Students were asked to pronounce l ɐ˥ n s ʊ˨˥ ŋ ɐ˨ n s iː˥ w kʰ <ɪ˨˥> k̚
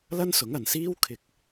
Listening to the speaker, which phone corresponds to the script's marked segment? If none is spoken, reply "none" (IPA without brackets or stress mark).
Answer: ɪ˧